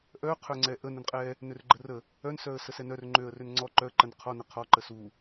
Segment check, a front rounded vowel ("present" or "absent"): present